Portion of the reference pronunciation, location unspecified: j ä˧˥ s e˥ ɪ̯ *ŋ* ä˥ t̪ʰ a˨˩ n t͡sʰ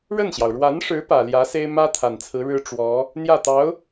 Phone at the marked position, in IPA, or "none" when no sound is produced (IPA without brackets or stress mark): m